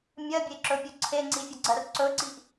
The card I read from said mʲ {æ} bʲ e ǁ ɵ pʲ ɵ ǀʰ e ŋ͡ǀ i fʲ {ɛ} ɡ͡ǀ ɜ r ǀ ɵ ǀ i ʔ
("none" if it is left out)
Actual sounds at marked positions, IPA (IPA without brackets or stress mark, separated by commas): ɜ, ə